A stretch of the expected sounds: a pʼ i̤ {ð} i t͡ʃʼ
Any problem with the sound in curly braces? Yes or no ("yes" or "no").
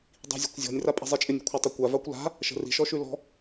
yes